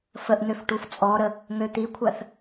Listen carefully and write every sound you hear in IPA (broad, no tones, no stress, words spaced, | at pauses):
fəʔn̪øf ʈuft͡sʼɔɾə | ŋøt̪ikʷʰɜθ